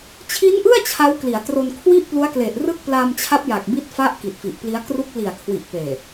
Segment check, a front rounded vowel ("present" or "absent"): absent